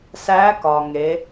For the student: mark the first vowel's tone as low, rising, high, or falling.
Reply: rising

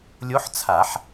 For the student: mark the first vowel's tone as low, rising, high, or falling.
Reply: rising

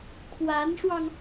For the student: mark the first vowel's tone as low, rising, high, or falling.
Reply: rising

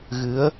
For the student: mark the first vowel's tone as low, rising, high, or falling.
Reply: rising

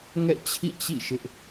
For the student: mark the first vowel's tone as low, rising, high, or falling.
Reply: falling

